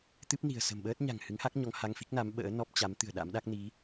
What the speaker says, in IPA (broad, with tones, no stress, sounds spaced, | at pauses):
t̪ ɨ˦˥ p̚ n i̤˨˩ ə̯ s ə̤˨˩ m ɓ əː˦˥ t̚ ɲ a̤˨˩ ŋ h ɨ˨˦ ŋ h a˦˥ k̚ ɲ ɔ˧ ŋ h a˧ ŋ f i˦˥ k̚ n a˨˦ m ɓ ə̰ː˧˥ n ɔ˦˥ p̚ t͡ɕ a˨˦ m t̪ ɨ̤˨˩ ə̯ ɗ a̰˧˥ m ɗ a˦˥ k̚ n i˨˦